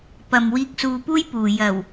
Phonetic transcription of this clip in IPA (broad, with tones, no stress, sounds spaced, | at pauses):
p ɐ˨ m w iː˧ k̚ s uː˧ p uː˥ j p uː˨ j ɐ˨˩ w